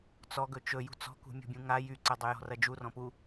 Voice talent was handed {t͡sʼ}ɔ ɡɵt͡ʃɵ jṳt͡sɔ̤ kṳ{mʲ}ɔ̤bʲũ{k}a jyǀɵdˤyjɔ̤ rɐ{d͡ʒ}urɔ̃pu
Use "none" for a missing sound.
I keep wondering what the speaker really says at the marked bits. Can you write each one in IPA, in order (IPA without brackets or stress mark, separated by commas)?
t͡s, mʲ, ŋ, d͡ʒ